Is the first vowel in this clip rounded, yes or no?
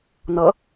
no